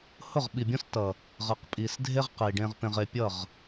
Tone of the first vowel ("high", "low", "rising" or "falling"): falling